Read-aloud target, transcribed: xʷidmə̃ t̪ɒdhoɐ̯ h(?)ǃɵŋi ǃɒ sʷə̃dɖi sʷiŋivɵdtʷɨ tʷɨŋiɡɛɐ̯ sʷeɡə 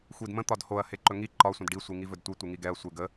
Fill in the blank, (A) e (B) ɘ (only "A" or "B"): A